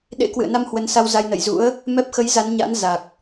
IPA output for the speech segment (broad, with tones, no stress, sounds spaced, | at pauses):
ɗ ḛ˧˥ k w ɨ̰˧˨ ə̯ n a˧ m h w ə˨˦ n s a˧ w z a˧ j n ə̰˧˨ j z ṵ˧˥ ə̯ | m ɛ˦˥ p̚ x ə˨˦ j z a˨˦ n ɲ a̰˧˥ n z a˨˩ k̚